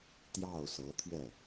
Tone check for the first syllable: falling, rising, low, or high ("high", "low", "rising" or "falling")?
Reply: falling